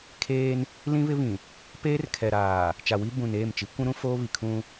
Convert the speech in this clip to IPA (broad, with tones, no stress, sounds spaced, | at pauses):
kʰ eː˦ n | l ĩ˦ β ɪ˦ β ĩ˨ | p eː˦ r kʰ ɛ˨ ɾ aː˨ | t͡ʃ a˨ w i˦ b ũ˨ n eː˦˨ m t͡ʃ i˨˦ kʷ ũ˦ ɾ ũ˦ f oː˦ β i˨ kʰ ũ˦